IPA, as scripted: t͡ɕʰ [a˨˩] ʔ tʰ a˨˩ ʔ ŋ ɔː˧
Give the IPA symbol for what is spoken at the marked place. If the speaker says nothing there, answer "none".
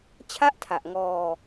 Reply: a˥˩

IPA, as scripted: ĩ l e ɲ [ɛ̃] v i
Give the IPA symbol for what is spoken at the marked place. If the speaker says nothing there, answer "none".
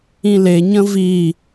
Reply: ə̃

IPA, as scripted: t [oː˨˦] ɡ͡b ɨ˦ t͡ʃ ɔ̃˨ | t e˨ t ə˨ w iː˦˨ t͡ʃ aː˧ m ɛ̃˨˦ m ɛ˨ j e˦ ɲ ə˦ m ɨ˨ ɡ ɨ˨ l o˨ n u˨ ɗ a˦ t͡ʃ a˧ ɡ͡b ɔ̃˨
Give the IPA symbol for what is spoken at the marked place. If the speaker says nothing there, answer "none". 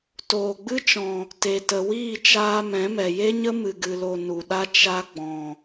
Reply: oː˨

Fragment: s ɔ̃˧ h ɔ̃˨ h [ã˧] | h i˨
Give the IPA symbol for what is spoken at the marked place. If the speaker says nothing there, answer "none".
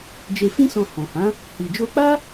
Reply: ã˨˦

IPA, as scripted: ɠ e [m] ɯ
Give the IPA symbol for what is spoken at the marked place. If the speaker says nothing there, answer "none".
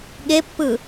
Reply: pː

